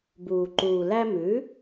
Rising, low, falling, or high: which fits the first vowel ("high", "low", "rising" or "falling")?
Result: low